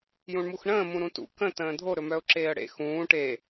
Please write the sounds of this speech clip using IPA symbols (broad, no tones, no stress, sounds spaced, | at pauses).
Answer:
j ũ ɳ m u x ɳ ə̃ː m ũ ɾ ũ t ṵ k ə̃ t ə̃ː dʱ o ɾ ɵ m œ ʊ̯ ǁ eː ə̯ ɽ ḛ x ũː ʈ e